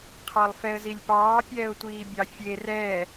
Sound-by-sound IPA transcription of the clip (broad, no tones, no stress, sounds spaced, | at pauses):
qʰ ɑ lˠ f ɛ ə̯ z i lʲ p ɑː pʲ ɛː ʊ̯ tʷ iː bʲ ɑ fʲ e r ɛː